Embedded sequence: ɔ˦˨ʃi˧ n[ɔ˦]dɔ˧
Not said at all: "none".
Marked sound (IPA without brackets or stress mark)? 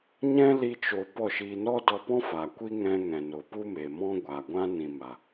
ɔ˦